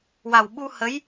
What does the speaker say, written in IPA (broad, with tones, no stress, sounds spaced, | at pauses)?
w a˨˩ w ɓ u˧ h ə˧˥ j